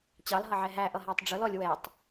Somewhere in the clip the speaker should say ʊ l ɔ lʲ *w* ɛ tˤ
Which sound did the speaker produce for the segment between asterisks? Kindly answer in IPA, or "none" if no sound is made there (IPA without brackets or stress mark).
w